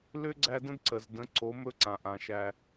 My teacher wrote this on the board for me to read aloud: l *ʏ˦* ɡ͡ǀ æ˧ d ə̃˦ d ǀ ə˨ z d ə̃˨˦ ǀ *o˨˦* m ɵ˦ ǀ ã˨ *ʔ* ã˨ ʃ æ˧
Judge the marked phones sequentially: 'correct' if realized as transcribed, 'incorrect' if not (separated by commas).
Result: correct, correct, correct